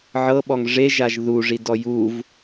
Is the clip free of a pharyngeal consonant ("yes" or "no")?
no